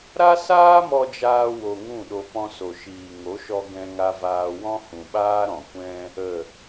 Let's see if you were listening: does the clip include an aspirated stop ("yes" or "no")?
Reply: no